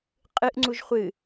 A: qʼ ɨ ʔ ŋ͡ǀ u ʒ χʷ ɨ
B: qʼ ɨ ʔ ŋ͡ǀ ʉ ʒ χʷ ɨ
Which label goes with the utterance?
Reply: A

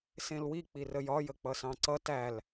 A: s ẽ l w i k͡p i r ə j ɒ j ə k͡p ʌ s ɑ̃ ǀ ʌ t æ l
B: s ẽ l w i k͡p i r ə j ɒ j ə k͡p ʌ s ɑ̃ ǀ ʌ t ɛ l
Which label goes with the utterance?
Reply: A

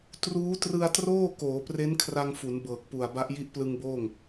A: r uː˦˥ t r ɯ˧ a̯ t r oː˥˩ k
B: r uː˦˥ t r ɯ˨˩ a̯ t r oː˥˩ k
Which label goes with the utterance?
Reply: A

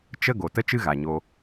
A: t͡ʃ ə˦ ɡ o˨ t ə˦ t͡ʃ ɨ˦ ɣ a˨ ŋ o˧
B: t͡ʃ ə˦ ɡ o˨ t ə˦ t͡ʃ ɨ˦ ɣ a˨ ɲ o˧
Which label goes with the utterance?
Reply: B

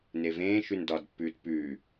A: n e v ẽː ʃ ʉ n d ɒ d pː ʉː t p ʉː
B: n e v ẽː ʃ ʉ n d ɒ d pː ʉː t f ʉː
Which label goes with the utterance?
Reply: A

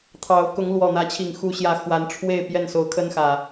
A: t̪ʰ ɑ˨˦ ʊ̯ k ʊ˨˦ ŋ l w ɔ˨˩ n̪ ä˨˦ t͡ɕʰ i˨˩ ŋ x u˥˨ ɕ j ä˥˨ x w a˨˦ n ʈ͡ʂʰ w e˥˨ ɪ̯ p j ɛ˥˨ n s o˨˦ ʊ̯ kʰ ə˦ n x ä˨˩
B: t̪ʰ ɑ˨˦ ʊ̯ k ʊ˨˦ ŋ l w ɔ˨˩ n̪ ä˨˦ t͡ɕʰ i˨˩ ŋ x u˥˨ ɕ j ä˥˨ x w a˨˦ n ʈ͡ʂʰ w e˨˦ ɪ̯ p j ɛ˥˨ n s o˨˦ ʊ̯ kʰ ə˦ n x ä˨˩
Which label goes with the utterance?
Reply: A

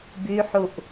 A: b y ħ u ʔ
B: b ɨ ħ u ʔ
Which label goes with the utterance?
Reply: A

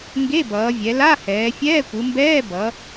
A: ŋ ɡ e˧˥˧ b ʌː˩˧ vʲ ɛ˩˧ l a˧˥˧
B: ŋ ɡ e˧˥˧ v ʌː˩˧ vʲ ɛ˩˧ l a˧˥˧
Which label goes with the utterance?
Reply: A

